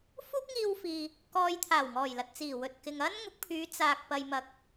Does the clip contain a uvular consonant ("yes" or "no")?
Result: no